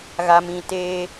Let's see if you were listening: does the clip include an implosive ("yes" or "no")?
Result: no